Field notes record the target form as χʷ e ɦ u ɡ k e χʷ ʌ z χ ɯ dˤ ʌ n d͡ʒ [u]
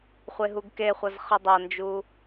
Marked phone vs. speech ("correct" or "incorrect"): correct